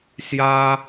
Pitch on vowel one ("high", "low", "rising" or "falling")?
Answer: high